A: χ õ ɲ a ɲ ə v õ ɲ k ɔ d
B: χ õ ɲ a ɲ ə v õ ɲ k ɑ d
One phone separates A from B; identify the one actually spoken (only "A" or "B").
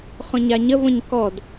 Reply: A